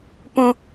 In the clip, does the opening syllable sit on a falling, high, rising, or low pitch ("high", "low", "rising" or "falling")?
high